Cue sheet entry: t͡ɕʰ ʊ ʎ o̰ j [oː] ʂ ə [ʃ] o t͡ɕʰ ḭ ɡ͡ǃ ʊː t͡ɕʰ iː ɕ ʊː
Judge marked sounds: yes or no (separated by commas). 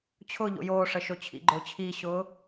yes, yes